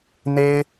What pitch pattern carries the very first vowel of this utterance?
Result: high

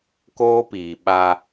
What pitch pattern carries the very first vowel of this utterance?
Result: high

